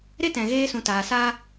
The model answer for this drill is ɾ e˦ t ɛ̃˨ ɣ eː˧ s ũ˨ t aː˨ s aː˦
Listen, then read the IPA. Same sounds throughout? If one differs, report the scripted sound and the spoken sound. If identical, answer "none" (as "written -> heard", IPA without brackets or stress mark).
none